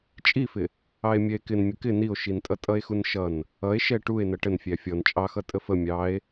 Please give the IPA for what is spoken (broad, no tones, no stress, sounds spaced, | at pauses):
t͡ʃʼ i f ɪ | ɑ e̯ mʲ ɛ e̯ k ɪ n mʲ ə k ɪ n i o̯ ʃ i n tʼ ʌ tʼ ʌ e̯ x u n ʃ ʌ n | ʌ e̯ ʃ ɛ ʈ u e̯ n ʌ ʈ ə n fʲ æ fʲ ɔ n t͡ʃʼ ɑ x ʌ tʼ ə f ə mʲ ɑ e̯